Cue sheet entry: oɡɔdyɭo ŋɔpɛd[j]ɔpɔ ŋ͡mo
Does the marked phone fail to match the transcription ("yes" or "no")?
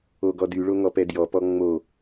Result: no